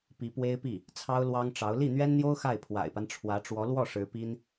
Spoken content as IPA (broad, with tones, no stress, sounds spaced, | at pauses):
p i˧˥ p w e˥ ɪ̯ p i˥˩ | t͡sʰ ɑ˥ ʊ̯ l w ɑ˥ ŋ ʈ͡ʂ ɑ˧˥ ʊ̯ l i˥˩ n̪ ɥ ɛ˥ n n̪ j o˥ ʊ̯ x a˥˩ ɪ̯ pʰ w a̰˨˩ ɪ̯ p a˦ n ʈ͡ʂʰ w ä˧˥ ʈ͡ʂ w ɔ˧˥ l w ɔ˥˩ ʂ ɻ̩˧˥ p i˥ n